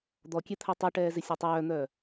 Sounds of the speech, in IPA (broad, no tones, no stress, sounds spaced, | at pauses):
d̪ ɔ kʲ e t̪ʰ æ tˤ u ʈ ɛː z ɪ sʲ a tˤ œː n̪ œː